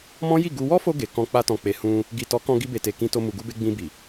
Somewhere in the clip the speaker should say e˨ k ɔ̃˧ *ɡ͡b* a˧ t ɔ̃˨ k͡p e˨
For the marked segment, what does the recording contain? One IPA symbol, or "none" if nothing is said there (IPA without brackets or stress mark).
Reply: k͡p